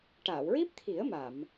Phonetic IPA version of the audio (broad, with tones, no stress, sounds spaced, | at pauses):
ʈ aː˨˩˨ w ɹ i˦˥ p̚ t̪ʰ i˨˩˦ ə̯ m a˨˩˨ m